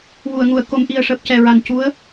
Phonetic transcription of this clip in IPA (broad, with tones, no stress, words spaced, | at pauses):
wu˨˩˨ə̯ŋu˨˩˨ə̯ ko˨˩˨mʔi˨˩ə̯ ʂəː˨˩p̚cɛ˨˩ɹa˨˩n cu˧˥ə̯